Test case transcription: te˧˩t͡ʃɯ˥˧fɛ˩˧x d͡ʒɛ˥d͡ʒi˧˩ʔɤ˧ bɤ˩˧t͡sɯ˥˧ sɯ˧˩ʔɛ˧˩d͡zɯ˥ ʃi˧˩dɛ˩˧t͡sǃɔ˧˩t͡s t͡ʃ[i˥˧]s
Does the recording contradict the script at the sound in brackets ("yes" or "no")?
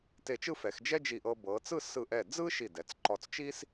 yes